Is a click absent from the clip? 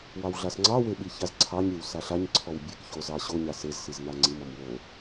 no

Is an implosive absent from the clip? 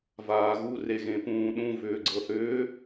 no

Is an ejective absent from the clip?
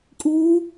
no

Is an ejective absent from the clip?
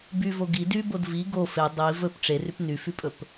no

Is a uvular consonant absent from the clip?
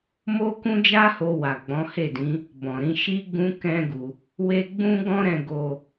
yes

